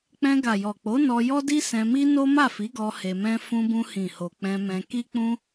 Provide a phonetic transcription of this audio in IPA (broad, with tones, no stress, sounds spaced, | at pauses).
k͡p ɛ̃˧ ɡ a˨ j ɔ˨ k͡p o˨˦ n ɔ˧ j ɔ˦ d i˦ s ɛ̃˧ m i˦ n o˦ m a˦˨ f i˨˦ ɡ ɔ˧ h e˧ m ɛ̃˦ f ũ˧ b ũ˧ h ĩ˨ h o˨ k͡p ɛ̃˧ m ɛ̃˧ k i˦ k͡p ũ˦